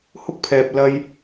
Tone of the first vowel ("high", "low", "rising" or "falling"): high